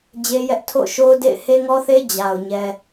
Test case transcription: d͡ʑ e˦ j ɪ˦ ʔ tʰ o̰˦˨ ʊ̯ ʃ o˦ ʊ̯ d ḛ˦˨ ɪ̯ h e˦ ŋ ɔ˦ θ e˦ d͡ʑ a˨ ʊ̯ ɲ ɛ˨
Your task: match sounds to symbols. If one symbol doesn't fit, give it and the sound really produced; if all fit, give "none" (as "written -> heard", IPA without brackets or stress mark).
ɪ˦ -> ɛ˦